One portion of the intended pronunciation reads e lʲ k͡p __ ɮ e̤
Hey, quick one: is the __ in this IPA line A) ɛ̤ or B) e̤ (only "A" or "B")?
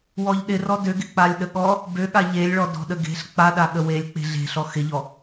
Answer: B